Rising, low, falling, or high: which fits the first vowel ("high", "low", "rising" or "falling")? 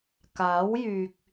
rising